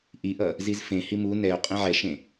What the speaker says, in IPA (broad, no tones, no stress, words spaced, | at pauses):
ʔiʔʌ | zizfẽ himu nɛo̯ qʼẽʕɛʃẽ